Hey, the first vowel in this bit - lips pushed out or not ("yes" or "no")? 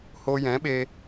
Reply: yes